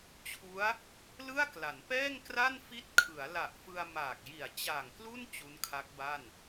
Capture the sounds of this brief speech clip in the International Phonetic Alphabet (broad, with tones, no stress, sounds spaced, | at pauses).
t͡ɕʰ u˦˥ a̯ | l ɯ˥˩ a̯ k l a˩˦ n p ɛː˥˩ ŋ k r a˥˩ n f i˦˥ t̚ kʰ ɯ˩˦ a̯ l a˨˩ ʔ f ɯ˧ a̯ m aː˨˩ k̚ j i˨˩ a̯ t͡ɕ aː˨˩ ŋ k l u˥˩ n t͡ɕ u˦˥ n kʰ a˦˥ k̚ b a˥˩ n